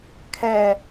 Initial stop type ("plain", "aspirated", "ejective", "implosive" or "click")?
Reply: aspirated